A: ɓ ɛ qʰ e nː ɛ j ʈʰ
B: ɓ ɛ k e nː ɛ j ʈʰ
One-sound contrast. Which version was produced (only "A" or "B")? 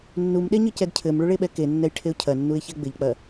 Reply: B